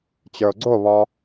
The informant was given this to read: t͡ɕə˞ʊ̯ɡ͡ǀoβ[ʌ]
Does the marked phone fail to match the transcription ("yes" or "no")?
yes